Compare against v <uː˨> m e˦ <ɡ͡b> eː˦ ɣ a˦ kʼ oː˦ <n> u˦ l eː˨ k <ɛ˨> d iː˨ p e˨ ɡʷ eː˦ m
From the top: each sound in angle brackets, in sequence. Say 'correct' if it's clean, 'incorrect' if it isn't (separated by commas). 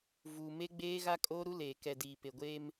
correct, correct, incorrect, correct